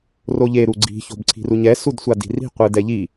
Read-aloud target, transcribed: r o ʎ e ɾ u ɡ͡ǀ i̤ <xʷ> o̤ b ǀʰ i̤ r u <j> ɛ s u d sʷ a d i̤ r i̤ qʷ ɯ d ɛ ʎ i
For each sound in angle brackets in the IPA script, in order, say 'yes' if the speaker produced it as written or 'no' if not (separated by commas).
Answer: no, no